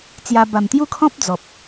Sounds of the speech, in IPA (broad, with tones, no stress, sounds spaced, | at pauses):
t͡s j a˧ b a˨˩ m t̪ j u˦ kʰ ɔ̃˦ p̚ d͡z ɔ˨ p̚